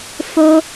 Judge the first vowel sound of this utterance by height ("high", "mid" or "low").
mid